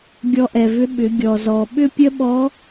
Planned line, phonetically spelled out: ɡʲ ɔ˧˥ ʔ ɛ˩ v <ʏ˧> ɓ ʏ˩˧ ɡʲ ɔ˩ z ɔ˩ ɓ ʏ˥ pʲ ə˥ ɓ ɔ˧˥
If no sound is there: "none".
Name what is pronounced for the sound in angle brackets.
ʏ˧˥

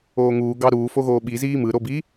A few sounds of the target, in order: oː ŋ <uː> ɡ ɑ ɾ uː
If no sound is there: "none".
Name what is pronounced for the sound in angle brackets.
uː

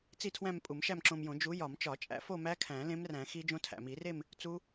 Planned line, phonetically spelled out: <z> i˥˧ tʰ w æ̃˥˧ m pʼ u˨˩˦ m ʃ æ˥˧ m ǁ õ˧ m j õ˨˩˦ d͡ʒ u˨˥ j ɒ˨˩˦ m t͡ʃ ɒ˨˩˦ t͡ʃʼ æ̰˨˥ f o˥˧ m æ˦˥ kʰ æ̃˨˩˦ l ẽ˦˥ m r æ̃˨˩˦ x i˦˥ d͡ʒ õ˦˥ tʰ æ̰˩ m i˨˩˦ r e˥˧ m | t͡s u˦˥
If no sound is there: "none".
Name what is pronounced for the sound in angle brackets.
t͡s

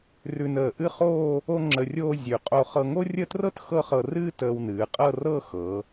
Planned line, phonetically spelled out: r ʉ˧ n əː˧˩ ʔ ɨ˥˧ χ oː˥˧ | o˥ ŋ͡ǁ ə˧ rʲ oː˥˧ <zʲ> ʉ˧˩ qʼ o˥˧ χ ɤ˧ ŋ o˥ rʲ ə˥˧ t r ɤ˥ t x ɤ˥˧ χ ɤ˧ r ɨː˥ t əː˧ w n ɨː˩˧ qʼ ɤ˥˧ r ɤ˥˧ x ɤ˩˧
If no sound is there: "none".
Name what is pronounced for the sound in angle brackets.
zʲ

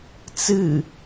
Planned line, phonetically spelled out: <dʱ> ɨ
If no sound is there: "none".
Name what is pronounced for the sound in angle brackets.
t͡s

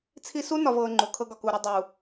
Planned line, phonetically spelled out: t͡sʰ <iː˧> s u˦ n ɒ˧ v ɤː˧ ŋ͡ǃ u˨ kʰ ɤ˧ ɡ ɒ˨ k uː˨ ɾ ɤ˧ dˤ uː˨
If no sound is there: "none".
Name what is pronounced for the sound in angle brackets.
i˧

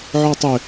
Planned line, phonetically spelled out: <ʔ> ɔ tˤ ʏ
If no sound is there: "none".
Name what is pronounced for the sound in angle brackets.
ʕ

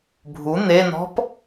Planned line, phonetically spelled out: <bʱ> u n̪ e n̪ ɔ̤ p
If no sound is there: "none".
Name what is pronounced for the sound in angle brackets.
bʱ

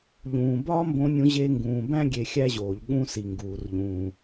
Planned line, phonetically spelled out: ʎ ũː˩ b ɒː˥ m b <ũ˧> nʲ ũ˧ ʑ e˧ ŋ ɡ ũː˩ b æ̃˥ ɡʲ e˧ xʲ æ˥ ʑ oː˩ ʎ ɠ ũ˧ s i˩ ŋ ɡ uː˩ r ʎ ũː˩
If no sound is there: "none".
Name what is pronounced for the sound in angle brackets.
õ˧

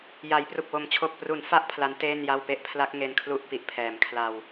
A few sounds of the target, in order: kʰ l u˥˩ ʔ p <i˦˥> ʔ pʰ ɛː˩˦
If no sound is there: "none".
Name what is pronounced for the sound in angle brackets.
i˨˩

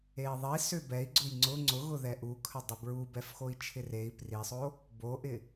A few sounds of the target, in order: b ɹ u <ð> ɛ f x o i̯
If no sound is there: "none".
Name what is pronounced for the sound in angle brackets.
b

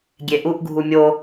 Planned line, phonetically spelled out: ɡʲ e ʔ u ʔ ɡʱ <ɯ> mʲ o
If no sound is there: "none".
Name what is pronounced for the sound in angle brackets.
u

